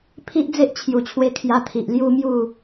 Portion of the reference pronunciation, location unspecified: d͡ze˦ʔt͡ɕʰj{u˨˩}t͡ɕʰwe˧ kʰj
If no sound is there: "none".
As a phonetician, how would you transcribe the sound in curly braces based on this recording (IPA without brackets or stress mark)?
u˨˩